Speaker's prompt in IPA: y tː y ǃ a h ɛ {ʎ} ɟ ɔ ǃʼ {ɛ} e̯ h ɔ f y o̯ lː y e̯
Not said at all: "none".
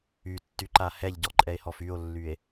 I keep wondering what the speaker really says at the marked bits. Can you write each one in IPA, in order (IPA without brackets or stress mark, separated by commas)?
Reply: ʎ, ɛ